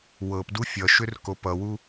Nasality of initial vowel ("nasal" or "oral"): oral